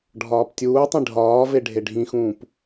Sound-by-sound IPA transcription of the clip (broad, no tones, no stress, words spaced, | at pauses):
ɖʱɒːptʲuːtˤĩ ɖʱɒːve ɖʱeɖʱĩxũːp